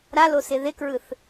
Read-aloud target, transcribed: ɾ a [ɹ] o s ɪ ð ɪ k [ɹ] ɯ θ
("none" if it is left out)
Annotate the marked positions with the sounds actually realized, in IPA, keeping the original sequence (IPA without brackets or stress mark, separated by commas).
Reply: l, ɹ